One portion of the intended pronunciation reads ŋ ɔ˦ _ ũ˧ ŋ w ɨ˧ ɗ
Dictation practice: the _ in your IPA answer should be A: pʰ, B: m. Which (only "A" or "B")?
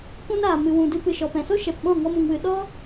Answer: B